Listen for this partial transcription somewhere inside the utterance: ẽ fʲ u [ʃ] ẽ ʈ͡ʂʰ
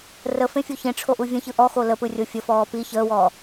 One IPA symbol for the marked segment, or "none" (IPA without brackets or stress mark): ç